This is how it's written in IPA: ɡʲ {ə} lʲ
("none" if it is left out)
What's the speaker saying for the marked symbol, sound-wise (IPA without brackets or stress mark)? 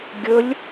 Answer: ə